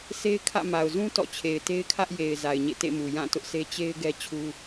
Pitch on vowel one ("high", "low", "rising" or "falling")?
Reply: high